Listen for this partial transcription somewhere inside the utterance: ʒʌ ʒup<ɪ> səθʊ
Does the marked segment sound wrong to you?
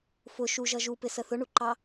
no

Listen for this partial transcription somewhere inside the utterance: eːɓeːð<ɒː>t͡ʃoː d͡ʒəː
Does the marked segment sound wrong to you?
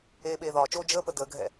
no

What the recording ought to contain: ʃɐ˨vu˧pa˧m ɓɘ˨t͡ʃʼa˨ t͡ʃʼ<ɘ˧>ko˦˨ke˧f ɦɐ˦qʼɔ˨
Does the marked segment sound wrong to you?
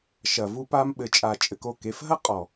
no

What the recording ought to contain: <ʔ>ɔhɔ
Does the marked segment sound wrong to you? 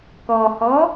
yes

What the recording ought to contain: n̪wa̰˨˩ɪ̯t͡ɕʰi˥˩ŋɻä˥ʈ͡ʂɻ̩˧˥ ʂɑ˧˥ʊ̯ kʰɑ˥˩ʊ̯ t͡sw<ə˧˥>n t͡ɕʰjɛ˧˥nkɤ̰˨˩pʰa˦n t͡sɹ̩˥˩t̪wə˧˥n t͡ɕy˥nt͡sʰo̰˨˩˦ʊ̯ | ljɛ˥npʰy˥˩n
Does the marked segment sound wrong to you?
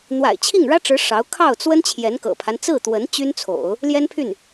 yes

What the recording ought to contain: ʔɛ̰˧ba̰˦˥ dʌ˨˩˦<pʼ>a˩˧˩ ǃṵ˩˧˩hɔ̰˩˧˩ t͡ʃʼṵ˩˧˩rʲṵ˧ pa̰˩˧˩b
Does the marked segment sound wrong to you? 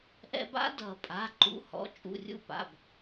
no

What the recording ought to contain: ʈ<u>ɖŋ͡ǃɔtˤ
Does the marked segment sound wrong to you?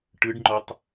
yes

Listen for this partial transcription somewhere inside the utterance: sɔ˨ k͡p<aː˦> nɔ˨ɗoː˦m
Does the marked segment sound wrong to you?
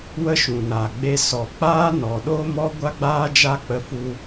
no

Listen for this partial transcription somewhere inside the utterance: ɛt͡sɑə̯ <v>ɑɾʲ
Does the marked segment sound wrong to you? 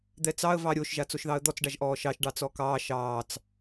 no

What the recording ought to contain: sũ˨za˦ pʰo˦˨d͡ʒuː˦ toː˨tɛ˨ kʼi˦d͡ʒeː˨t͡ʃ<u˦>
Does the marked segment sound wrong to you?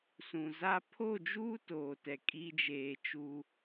no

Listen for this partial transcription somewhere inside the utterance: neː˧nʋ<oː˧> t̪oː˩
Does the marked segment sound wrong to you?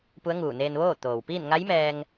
yes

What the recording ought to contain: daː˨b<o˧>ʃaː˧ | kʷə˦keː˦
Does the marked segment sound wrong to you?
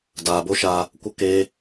no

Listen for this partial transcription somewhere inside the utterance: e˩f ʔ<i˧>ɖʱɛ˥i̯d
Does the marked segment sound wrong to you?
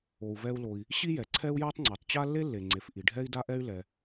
yes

